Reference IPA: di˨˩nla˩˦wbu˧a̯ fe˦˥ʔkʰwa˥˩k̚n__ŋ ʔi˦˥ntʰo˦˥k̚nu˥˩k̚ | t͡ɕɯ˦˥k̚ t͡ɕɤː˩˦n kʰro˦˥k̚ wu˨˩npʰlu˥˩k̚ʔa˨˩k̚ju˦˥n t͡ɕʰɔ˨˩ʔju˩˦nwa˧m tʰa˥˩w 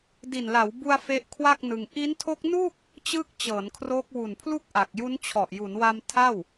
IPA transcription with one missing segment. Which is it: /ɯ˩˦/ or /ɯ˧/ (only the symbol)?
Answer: ɯ˧